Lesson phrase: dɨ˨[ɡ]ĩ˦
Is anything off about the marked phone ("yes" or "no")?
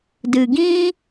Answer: no